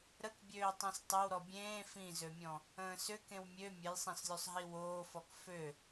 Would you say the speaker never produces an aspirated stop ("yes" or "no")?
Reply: yes